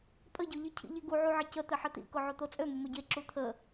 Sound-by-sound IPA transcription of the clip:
pʼ ə ɟ ø ʎ i cʰ ḭ ʎ e ɡ u ʕ u ʕ ə c ə t̪ ɘ ħ ɘ t̪ ḭ k ʊ ʕ o t̪ o t͡sʼ ø m ʊ m ɵ ɟ e ǁ u t̪ʰ ə

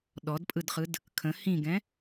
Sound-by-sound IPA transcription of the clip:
ɗ ɔ d pʼ ɯ d χ ɯ d | kʰ ə̃ h ĩ ɡ ɛ̃

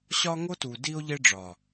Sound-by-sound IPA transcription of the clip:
ɕ ɒ˦ ŋ o˦ t u˨ d i˦ o̯ ʎ e˦ ɖ͡ʐ ɒ˨

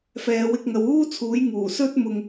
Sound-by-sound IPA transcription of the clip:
f ɛː˨˧ w ɪ˧ k̚ ŋ ɐ˨˧ w uː˥ t͡sʰ uː˨˥ j ŋ uː˨˩ s ɵ˥ t̚ m ʊ˧ ŋ

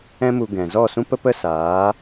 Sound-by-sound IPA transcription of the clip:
ɛ̃˦ m u˧ ɡ ɛ̃˨ z ɔ˦˨ s ũ˦ p ə˦ p ə˦ s aː˨˦

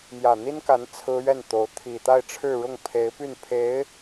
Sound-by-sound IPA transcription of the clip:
m j ä˨˩ n̪ i˥ n k a˧˥ n t͡sʰ ɹ̩˥ ɥ ɛ˥˩ n t̪ o˧˥ ʊ̯ t̪ʰ i˨˩ t̪ a˥˧ ɪ̯ ʈ͡ʂʰ ɻ̩˥˧ ɻ ʊ˥˩ ŋ pʰ e˧˥ ɪ̯ p y˥˩ n pʰ e˧˥ ɪ̯

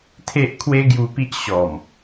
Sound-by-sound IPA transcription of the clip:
t̪ʰ e˦ ʔ kʰ w e˦ ɡ j u˧ p i˦ ʔ ɕ ɔ˨˩ m

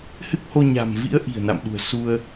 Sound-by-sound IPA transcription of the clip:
h ɨ˦˥ k̚ h o˧ ɲ a̤˨˩ m v ḭ˧˥ ə̯ ʔ i̤˨˩ ə̯ n a̰˧˨ m ɗ ṳ˨˩ ə̯ s u˧ ə̯

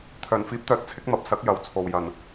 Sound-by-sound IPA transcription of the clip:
t̪ʰ œː˨˩ n f iː˨˥ p̚ t̪ œː˨˥ t̚ t͡sʰ ɪ˨˥ k̚ m ɐ˨ p̚ s ɐ˨˥ k̚ j ɐ˨ w t͡sʰ o˨ w j ɐ˨˩ n

